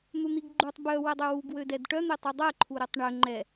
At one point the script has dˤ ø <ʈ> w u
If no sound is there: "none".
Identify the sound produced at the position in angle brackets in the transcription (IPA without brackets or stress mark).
none